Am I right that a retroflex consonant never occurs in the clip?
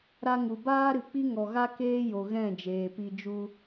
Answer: yes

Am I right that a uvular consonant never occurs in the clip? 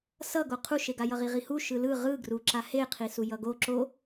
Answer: no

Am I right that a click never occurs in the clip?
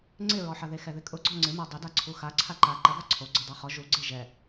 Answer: no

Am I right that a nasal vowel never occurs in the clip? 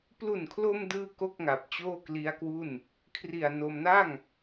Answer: yes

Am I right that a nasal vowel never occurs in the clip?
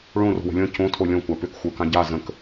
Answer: no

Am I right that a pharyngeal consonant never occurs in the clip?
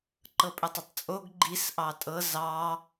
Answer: yes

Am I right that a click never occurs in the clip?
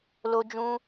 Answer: yes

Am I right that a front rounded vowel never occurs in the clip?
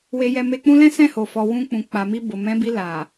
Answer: yes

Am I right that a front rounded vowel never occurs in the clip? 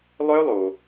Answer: no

